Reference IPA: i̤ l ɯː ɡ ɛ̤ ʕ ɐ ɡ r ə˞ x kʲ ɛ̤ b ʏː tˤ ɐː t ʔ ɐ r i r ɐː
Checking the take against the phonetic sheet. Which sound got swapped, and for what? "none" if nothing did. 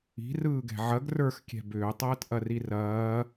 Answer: l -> r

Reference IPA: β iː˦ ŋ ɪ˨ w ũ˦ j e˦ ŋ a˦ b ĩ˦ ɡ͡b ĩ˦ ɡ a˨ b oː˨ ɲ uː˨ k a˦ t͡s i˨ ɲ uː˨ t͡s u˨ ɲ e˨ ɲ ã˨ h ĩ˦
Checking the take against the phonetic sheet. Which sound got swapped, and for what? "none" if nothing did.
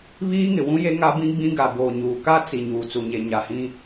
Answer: ã˨ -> a˨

